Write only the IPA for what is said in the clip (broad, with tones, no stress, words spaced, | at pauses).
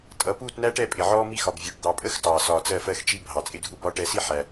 tʼʌ˨ puː˦˨tnæ˦ʈɛ˦˨pʼɪ˨ ʕɔː˦mi˦xɒ˨b vʲu˨ʈ d̪ɑ˨pʼə˦x tɑː˨sɒː˨t͡s ɜ˦˨fɜ˦xt͡ʃi˦ bʱɑ˨t͡sʼɪ˦dʱu˦ bɒ˦ʈɛ˦ si˦ ħæ˦